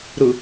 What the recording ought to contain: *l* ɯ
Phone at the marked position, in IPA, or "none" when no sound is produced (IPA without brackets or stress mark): ɾ